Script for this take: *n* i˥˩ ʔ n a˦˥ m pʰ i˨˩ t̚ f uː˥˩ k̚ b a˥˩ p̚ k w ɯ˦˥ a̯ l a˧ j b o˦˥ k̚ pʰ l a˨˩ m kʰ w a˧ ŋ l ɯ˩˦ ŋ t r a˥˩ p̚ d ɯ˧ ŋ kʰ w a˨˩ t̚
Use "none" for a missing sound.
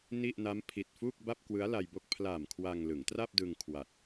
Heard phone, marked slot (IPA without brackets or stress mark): n